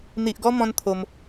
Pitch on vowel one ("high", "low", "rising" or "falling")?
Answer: low